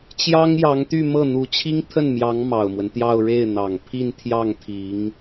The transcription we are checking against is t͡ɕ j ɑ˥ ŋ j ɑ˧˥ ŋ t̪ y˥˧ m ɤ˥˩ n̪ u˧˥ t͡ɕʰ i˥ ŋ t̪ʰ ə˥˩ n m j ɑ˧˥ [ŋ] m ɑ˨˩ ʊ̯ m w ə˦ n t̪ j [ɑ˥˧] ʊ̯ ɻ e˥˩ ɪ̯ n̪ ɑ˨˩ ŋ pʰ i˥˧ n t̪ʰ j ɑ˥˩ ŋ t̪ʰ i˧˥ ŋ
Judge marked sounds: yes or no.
yes, yes

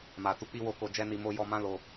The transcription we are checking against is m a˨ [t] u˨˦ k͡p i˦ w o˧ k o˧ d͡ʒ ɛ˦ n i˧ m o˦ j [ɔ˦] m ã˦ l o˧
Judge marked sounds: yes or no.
yes, no

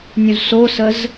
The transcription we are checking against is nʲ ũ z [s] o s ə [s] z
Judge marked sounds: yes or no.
yes, no

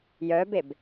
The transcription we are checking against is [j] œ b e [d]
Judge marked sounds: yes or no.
yes, no

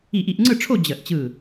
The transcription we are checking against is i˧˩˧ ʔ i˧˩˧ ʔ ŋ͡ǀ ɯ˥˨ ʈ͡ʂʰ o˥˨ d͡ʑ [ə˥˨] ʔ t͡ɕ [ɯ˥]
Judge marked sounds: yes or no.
no, no

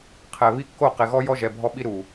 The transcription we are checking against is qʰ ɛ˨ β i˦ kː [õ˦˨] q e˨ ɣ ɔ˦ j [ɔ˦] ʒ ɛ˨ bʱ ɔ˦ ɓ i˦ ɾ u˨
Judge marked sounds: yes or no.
no, yes

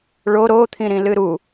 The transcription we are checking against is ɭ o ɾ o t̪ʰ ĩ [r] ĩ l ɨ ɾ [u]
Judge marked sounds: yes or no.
no, yes

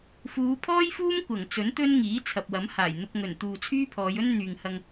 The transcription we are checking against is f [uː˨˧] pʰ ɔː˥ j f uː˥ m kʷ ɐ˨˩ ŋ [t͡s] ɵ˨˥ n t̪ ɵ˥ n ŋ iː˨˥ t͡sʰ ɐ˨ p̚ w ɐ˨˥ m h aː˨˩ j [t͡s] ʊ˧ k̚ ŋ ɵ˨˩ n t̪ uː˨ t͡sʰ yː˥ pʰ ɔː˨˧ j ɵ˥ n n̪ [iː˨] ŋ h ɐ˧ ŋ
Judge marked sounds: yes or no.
yes, yes, no, no

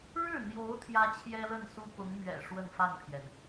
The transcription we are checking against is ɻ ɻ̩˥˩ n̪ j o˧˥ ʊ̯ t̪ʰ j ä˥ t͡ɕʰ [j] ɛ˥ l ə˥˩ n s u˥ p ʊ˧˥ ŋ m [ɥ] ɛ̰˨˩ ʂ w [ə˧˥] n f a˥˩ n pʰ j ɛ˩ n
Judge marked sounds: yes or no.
yes, yes, no

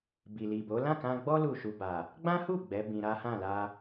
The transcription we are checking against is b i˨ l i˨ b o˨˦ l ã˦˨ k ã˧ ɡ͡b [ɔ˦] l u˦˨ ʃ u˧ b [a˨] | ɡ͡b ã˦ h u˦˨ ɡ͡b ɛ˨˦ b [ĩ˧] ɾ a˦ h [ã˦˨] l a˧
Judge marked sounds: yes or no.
yes, yes, yes, yes

